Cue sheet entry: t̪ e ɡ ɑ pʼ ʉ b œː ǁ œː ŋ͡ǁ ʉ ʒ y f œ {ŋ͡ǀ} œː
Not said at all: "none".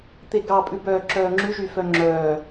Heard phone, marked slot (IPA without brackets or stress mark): ŋ͡ǁ